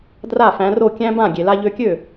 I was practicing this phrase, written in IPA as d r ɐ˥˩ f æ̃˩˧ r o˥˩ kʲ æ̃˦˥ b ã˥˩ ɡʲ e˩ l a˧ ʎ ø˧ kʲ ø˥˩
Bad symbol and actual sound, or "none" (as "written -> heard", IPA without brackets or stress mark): ɐ˥˩ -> a˥˩